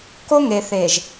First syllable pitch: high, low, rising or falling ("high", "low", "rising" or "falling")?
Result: high